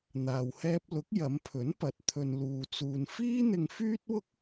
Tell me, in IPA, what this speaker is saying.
n̪ aː˨ w h ɛː˧ p̚ l ʊ˨˥ k̚ j ɐ˨˧ m pʰ ɵ˨˥ n p ɐ˨˥ t̚ t̪ʰ ɵ˧ n l uː˧ t͡s uː˧ n f iː˥ n̪ ɪ˧ ŋ f yː˥ t̚ w ʊ˥ k̚

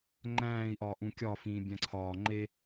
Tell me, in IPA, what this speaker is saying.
ŋ͡ǃ æ̃ː i̯ ʔ ɒː ʔ ũ kʲ ɒ f ĩː bʲ æ̃ ǀʰ ɒː ŋ͡ǃ e

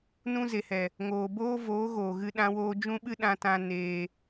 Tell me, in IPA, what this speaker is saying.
n ũ˧ z e˨ h ɛ˨ | ŋ oː˨ b oː˦ v oː˨˦ ɣ oː˨ ɣ ɨ˧ ɗ ã˧ w oː˧ d͡ʒ ũ˦ ɓ ɨ˦ ɗ ã˧ t ã˧ n eː˧

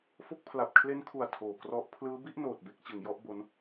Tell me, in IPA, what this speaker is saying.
f o˦˥ k̚ pʰ l a˨˩ p̚ kʰ l e˦˥ n kʰ u˨˩ a̯ tʰ oː˨˩ k r ɔ˦˥ ʔ pʰ l ɯː˦˥ b i˥˩ ʔ n oː˨˩ t̚ b e˥˩ k̚ t͡ɕ ɯ˩˦ ŋ j ɔ˦˥ ʔ b o˦˥ n

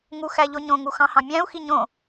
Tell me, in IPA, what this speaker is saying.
ŋ u x æ ʎ o ɲ õ ŋ u x ɑ̃ h ɑ̃ mʲ æ̃ u̯ x i ɲ õ

